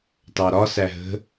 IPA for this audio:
t ɑ ɾ ɒ s æ ɦ ə̤

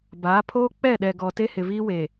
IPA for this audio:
b aː˨˦ pʰ oː˦ k͡p ɛ˦˨ ɗ ɛ˨ ɡ ɔ˨ t e˦ h ɪ˨ v iː˦ w e˨

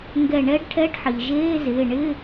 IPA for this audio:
ŋ ɡ ɛ˧˩ ɳ ɛ˧˥ ɖ ʈʰ ɛ˧˥˧ ɖ ħ i˩ ʒ eː˧˥˧ z ɪː˩˧˩ ɳ ɪ˧˥˧

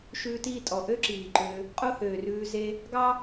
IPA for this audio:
ʃ ʉː˧ t iː˦˨ tʼ ɔ˨ ʔ ø˦ ǁ iː˨ ǃ ø˧ | qʼ o˦ h øː˨ r ʉː˧ z e˦ | ɡ ɑ˦

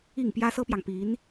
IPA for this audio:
i˥˩ ŋ p j ä˥ s ɤ˥ p j ɑ˨ ŋ p i˧˥ n

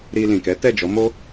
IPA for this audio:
ɾ i˧ l ĩ˨ k ɛ˨˦ t ɛ˦˨ d͡ʒ ɔ˨˦ m o˦

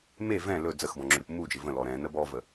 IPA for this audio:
m e v ɛ̃ l ɵ d͡z ə x b ɔ̃ ŋ͡ǁ ɵ ɾʲ u p m u d͡ʒ ɪ v ə̃ l ɔ ɾ ɛ̃ n ə b ɔ v ə

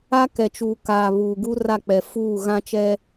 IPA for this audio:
a˦ k ɛ˨ t͡ʃ uː˨ k aː˨ β uː˨ ɡ u˦ r a˦˨ k͡p ɛ˨ f uː˦˨ ɣ ã˦ t͡ʃ ɛ˦

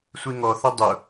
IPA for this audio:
sʷ i ŋ ɔ θ ʌ dˤ ʊ

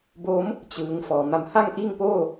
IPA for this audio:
b oː˧˥ m | t͡ɕ ɯː˩˧ ŋ f ɔː˩ m a˧˩ m h a˥˨ ŋ ʔ iː˥˨ ŋ p oː˥˨

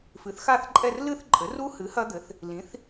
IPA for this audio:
f ɨ˩˥ θ x a˥˧ θ ǃʼ ɛ˥˧ r l ɨ˥˧ θ ǃʼ ɘ˩˥ r u˦˥ h ɨ˩˥ h ɐ˦˥ d̪ ɘ˩˥ θ | l ĩ˩˥ θ

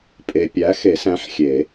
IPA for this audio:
pʼ e˨ pʲ æ˨˥ x e˨˩˦ s æ̃˨˥ ħ xʲ e˨˩˦

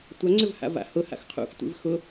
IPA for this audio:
tʷ a ŋ͡ǀ ʏ v h a̰ v a̰ h ʊ h a̰ x qʰ ṵ x tʷ ḭ v x ʊ

